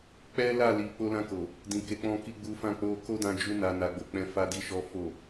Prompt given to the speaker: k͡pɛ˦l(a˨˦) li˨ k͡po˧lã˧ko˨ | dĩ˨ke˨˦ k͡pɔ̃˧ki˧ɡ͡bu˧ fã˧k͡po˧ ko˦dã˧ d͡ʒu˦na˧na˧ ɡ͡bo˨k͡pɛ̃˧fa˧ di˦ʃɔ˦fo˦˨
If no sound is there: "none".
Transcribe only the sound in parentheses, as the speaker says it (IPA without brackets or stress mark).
a˦˨